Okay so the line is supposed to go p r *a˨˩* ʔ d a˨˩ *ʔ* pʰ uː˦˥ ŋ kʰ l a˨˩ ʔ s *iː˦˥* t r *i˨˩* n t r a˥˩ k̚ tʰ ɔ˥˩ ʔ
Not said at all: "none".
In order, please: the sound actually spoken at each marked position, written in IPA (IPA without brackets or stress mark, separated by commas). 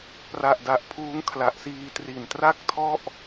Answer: a˨˩, ʔ, iː˧, i˨˩